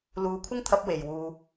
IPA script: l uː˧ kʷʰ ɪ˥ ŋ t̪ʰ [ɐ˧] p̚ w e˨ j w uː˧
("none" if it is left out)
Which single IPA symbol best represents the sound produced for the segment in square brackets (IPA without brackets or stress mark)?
ɐ˧